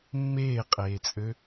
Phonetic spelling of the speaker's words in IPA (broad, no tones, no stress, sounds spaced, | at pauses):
mː eː qʼ eː t͡sʼ ø